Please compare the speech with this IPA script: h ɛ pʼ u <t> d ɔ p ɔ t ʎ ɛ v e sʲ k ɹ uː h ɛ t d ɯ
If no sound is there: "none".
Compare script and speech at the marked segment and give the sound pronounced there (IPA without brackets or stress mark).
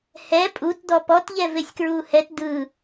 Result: t